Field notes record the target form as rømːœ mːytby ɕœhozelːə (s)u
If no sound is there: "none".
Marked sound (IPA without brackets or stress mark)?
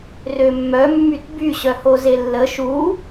ʃ